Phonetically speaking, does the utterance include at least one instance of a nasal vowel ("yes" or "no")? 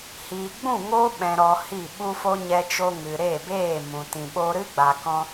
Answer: yes